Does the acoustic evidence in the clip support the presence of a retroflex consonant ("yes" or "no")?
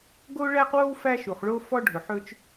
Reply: yes